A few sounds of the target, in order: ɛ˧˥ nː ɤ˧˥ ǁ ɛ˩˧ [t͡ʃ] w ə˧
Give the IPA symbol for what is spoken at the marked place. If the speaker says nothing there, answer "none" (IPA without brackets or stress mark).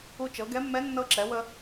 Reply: none